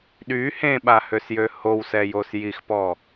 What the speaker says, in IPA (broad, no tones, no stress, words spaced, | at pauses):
ɗy hẽɓahøsjø howsɛjos jixpɔ